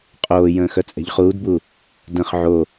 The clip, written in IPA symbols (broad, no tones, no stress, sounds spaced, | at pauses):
qʼ oː j ə̃ː x œ t͡sʼ ɛ̤ ʎ χ uː d b u | d ə̃ χ ʕ o